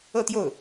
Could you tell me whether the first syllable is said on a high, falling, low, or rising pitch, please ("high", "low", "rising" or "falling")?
falling